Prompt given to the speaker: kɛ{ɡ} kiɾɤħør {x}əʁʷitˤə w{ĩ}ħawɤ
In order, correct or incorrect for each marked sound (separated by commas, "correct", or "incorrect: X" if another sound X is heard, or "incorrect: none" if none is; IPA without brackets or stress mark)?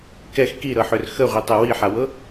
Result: incorrect: x, correct, incorrect: i